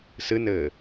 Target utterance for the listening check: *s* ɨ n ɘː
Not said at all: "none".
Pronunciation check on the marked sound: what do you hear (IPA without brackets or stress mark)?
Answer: s